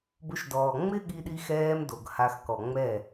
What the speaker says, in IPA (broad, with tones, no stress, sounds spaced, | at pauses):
b ʊ˧ ʃ d ɔː˨ ŋ͡m ɪ˦ ɠ i˧ ɗ i˧ x ɛː˧ m d o˨ ɡ h a˧ x k ɔ˨ ŋ͡m ɛ˦˨